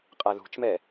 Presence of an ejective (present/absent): present